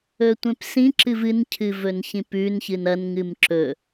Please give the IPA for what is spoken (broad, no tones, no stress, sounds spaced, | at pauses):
ɵ tʷ ẽ p s ĩ ǁ ɨ v ɨ n cʰ ɨ v ɵ n ç ĩ p ʉ n ç ɨ n ɐ n ŋ ɨ m ǁ ɵ